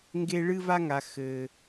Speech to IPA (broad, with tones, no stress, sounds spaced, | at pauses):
ŋ ɡ e˦ ɭ ɨ˦ v a˦ ŋ a˨ x ɘ˨